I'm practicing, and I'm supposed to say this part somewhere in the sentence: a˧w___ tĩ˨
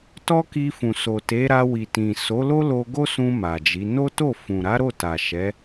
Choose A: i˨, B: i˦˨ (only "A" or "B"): A